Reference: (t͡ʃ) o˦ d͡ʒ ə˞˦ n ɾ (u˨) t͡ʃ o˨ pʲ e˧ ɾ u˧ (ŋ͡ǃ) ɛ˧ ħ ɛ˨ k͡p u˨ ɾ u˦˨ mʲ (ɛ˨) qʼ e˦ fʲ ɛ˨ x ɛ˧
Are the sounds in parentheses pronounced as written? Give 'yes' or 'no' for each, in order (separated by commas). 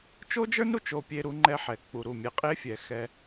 yes, yes, yes, no